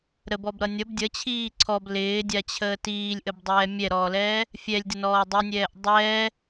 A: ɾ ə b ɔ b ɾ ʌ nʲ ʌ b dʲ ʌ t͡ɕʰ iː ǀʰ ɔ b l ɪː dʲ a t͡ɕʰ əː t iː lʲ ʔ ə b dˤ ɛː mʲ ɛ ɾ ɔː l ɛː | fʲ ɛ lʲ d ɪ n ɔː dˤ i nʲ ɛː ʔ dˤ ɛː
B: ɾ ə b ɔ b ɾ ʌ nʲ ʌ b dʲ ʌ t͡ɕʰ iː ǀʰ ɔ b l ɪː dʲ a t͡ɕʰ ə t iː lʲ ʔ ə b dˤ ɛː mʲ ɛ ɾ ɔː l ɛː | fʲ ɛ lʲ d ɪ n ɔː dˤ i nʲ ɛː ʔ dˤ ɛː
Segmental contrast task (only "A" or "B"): A